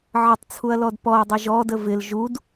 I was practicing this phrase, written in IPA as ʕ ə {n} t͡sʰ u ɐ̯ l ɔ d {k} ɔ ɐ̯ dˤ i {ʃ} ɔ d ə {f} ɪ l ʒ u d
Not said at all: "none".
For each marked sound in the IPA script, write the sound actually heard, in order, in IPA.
tˤ, p, ʒ, v

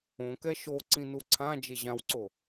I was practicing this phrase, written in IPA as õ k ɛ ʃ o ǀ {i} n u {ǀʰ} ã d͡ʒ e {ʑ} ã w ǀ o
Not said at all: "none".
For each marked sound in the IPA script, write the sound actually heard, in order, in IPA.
ĩ, ǀʰ, ʑ

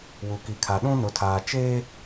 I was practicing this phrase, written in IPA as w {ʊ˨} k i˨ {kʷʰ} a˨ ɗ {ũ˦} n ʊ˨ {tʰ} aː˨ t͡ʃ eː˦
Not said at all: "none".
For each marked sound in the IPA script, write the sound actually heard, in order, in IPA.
u˨, kʰ, ũ˦, tʰ

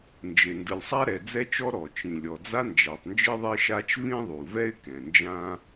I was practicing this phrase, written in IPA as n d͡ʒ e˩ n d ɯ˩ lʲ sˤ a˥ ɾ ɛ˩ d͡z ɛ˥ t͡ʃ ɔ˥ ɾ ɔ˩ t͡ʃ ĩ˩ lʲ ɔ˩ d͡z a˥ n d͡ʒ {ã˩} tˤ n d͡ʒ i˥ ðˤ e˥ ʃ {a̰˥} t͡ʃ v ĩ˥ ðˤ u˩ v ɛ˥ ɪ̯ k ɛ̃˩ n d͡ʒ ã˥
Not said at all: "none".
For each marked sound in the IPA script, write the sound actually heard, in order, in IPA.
a˩, a˥

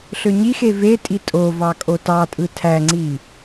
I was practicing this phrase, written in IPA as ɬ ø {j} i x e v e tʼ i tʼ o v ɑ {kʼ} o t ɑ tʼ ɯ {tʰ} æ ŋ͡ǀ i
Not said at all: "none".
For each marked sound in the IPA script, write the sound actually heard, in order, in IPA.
ɲ, kʼ, tʰ

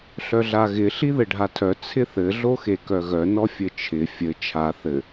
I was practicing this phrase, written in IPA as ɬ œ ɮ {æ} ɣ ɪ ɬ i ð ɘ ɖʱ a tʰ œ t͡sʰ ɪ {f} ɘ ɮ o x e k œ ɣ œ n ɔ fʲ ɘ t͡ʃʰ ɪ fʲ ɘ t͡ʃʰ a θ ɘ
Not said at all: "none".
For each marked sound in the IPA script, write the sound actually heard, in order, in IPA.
a, θ

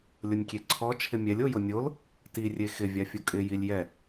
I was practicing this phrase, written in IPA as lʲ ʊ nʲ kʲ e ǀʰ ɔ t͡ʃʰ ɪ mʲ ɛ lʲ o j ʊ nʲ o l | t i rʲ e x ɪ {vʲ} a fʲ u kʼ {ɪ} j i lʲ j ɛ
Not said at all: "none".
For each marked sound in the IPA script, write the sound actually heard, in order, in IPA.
vʲ, ɪ

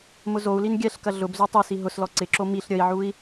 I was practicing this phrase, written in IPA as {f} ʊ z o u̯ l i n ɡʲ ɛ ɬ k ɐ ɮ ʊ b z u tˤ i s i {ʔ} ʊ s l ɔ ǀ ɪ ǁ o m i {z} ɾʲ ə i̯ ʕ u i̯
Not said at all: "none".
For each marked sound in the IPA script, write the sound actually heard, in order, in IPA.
m, ɦ, ɬ

